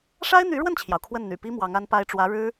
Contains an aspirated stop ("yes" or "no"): yes